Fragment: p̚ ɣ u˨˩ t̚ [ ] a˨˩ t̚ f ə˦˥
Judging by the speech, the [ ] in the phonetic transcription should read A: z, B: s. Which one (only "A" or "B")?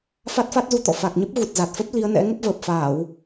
A